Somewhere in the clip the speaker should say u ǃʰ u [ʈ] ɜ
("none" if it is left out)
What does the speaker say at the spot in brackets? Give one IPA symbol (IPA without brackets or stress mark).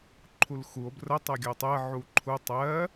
tˤ